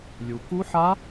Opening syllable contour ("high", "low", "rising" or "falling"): low